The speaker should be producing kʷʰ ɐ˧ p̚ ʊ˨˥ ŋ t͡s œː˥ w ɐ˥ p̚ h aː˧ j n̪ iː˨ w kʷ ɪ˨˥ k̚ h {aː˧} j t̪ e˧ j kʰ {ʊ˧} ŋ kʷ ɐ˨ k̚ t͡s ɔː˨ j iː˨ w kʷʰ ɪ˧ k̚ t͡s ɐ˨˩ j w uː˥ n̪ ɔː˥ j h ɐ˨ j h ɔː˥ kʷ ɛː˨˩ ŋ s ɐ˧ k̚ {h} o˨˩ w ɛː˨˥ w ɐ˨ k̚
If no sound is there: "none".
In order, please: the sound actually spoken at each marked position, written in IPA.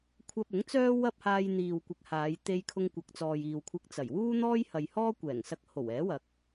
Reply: aː˨˧, ʊ˧, h

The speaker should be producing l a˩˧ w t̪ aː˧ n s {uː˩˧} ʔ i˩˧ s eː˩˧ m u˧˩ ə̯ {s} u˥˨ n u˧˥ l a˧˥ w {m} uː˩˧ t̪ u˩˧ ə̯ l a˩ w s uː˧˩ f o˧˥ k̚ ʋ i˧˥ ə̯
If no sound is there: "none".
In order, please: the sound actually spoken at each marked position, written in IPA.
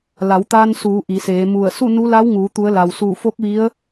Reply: uː˩˧, s, ŋ

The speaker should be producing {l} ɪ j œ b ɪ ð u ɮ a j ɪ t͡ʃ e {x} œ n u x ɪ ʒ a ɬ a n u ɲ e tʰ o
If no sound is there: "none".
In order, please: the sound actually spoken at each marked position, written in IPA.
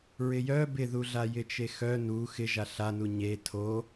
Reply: ɹ, x

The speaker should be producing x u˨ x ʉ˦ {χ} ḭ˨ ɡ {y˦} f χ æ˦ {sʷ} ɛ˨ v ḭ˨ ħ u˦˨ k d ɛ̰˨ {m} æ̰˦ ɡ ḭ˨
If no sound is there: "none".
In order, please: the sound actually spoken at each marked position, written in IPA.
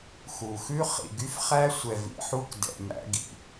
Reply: χ, y˦, sʷ, m

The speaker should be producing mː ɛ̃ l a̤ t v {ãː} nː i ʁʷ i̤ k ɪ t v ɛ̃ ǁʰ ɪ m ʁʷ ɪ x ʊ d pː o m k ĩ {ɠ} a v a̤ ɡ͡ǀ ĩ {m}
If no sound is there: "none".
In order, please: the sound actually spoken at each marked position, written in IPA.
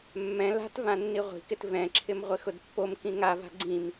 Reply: ã, ŋ, m

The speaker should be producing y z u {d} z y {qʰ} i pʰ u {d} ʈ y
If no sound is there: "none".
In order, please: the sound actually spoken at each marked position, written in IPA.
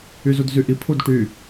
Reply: d, ʔ, d

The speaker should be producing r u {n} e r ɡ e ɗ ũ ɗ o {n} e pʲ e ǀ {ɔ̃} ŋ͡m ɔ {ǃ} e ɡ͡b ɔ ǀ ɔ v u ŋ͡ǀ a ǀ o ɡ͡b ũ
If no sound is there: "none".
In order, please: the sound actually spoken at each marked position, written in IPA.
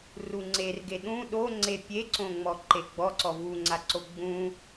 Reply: ŋ͡ǀ, ŋ͡ǀ, õ, ǃ

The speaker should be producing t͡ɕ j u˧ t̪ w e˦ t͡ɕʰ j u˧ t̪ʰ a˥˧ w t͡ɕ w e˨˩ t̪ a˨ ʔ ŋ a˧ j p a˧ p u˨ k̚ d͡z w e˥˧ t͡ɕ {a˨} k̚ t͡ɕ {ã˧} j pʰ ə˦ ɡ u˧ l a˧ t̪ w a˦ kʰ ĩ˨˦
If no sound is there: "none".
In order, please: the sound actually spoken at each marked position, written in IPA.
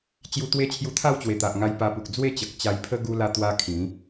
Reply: ə˨, a˧

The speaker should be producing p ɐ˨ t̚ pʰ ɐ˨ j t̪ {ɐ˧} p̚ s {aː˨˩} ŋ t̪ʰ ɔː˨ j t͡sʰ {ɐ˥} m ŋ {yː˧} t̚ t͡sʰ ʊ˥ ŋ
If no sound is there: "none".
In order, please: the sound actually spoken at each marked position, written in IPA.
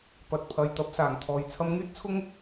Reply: ɐ˨˥, aː˨˩, ɐ˧, yː˥

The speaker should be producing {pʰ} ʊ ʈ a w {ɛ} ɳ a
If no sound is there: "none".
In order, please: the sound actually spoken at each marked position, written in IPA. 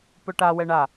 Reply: p, ɛ

